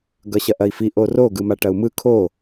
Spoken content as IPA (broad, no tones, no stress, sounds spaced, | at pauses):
ɡ ʌ ɕ ɐ ʔ ɐ i̯ f i ʔ o r o ɡ ɯ m a ʈ ɐ u̯ m ɯ kʰ o